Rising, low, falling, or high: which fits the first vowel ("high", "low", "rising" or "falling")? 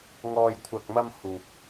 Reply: low